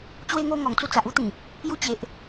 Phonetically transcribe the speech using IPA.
t͡ɕwe˧ŋo˧ ŋɔ˨˩ŋ t͡su˧t͡sa˨ʔu˦t̪ĩ˨˩ | ju˧t͡ɕe˨ʔ

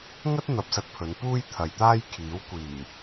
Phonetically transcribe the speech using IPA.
ŋɐ˥t̚ n̪ɐ˧p̚sɐ˧t̚pʰɵ˨˧n puː˥jt̪ʰɐ˨jt̪aː˥jkʰiː˨˥w kʷiː˨˩

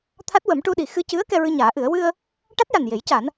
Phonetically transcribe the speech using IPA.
t̪ʰa˦˥t̚wə˨˩˦mʈu˧ɗi˨˩ xɨ˧cɨ˧˥ə̯ kɛ˧ɹɨ˧ɲaː˨˩˦ʔɨ˨˩˦ə̯ wɨ˧ə̯ | ʈa˦˥t̚ja˨˩nje˨˩˦j ca˨˩˦n

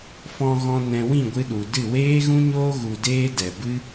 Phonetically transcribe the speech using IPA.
fɔ̃˧ɣɔ̃˧ nɛ̃˧ wĩ˦˨ɡʷɨ˧ɗu˨dɨ˦˨ weː˦ɣũ˦ɲoː˦ ɣu˧deː˦dɛ˨ bɨ˦

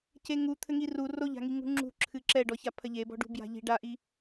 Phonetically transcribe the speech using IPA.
ceŋu t̪ʰɘŋiru roʎa̤ŋi ŋṳŋ͡ǁṳǁʰɨ ǁɛɖɔça pʰɐʎebɔ̤ɖṳ bja̤ʎi̤ ɖaʔi

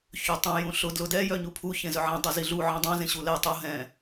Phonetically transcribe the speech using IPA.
çøtˤũ jũɬʊ dlʊdɛ jœɲupʰu çẽzœʕẽ dˤœziɮu ʕĩdˤœ̃ zẽɕulɛ tˤo ɦɛ̃

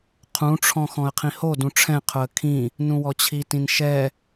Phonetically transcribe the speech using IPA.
qʰũʈ͡ʂʰɔ̃ xɔ̃ə̯qʰĩhodũ ʈ͡ʂʰɛ̃qʰʊə̯ kʰĩ | nũwɔt͡ɕʰitĩn ʃɛ

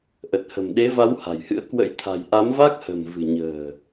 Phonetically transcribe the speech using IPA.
ʔə˨˩t̚hə̤˨˩m ɗe˨˦va˨˦w ha̤˨˩jhɨ̰˧˥ə̯ kwə̰˧˥jt̪ʰa̤˨˩j ʔa˨˦mva˦˥k̚hə̤˨˩m vɨ̤˨˩ɲə̤ː˨˩

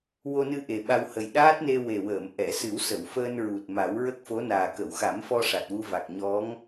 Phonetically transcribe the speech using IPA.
wo˧nɨ˧ ʔe˨˩ɓa˧whə˨˩j ɗaː˦˥t̚ne˧ we˨˩wəː˨˩˨mʔɛ˨˩˨ sɨ˨˩˦wsə˨˩˨wfəː˧nɹu˨˩t̚ ma˨˩˦w ɹə˦˥k̚fo˧˥naː˨˩ kə˨˩˨wxa˨˩˦mfɔ˧ ʂa˨˩t̚wu˧va˨˩k̚ ɲɔ˧˥ŋ

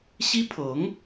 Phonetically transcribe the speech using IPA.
ɕi˥pʰɤ˧˥ŋ

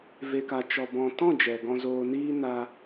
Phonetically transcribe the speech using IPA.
ve˨ka˨ t͡ʃɔ˨bɔ̃˨tɔ̃˦˨ d͡ʒɛ˨ɡɔ̃˧zoː˧niː˦ na˦

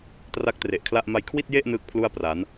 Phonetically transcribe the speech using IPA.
tra˦˥k̚tre˨˩ʔkʰla˥˩ʔ ma˧jkʰwi˥˩t̚je˥˩ʔ nɯː˥˩k̚pʰlu˥˩a̯ pra˩˦n

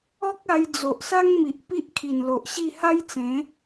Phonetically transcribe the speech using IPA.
ɔ˦k̚ a˧j d͡zo˨ʔsa˦ŋmi˨ʔ pi˦ʔkʰi˨˩nlo˨ʔɕi˥˧ ha˦jt͡sẽ˨˦

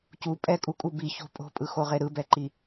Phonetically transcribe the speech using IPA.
cu pʼɛkʼukʼu bi ço̤ pʼo̤pʼɯxoʁe ɾɯbɛǃi

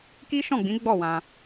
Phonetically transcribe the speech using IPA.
ki˦ʃɔ̃˦˨ɡ͡bĩ˨˦ ɡ͡bɔ˦˨ wã˧

